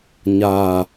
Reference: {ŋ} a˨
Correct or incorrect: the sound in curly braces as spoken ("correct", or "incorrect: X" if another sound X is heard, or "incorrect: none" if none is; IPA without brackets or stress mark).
incorrect: ɲ